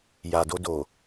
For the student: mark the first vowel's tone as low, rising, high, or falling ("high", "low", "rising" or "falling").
low